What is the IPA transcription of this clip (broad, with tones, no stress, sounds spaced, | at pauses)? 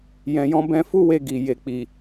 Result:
j ɛ̃˨ j ɔ̃˧ b ɛ̃˧ f u˦ w e˧ ɡ i˨ j e˨ k͡p i˨